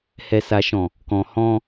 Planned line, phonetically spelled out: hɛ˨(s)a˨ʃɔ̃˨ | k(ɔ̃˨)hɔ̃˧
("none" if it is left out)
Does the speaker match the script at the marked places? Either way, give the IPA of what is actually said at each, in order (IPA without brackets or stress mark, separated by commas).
s, ɔ̃˨